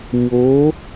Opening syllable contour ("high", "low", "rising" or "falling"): rising